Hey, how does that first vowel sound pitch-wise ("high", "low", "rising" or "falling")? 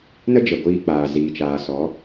high